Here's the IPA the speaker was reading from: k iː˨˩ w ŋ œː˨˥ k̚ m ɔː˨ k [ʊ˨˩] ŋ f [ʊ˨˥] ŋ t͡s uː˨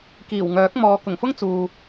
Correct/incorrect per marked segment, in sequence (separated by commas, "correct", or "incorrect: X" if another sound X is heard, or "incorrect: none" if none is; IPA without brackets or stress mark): correct, incorrect: ʊ˥